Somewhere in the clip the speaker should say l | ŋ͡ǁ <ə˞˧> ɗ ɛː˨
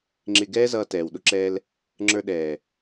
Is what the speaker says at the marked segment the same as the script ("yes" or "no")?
yes